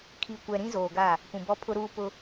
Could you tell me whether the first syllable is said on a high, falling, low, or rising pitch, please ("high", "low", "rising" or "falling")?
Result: low